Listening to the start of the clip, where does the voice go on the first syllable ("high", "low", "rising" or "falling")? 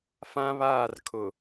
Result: high